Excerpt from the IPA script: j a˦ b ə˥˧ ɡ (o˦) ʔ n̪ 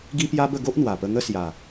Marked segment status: correct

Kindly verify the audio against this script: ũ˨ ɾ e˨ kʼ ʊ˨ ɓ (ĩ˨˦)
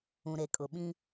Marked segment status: incorrect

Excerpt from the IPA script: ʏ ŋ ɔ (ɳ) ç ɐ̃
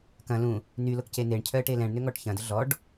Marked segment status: incorrect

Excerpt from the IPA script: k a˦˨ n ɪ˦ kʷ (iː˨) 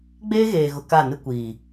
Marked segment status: correct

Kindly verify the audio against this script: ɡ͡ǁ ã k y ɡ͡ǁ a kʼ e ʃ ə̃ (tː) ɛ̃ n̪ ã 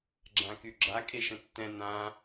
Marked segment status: correct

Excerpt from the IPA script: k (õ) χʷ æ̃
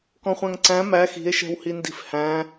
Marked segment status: incorrect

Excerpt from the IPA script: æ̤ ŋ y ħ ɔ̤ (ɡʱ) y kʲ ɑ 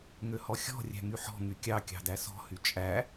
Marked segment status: incorrect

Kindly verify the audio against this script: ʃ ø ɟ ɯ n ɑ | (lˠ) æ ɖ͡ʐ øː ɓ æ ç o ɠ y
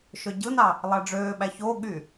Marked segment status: correct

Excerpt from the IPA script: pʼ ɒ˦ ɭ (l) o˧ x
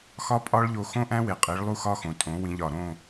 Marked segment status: incorrect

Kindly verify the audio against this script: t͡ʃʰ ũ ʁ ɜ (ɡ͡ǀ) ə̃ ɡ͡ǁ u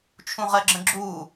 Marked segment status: incorrect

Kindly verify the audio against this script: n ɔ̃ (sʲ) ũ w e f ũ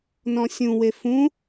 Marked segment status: correct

